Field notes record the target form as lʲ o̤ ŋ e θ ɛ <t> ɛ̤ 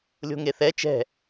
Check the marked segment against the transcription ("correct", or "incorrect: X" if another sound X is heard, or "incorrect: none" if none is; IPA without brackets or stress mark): incorrect: t͡ʃ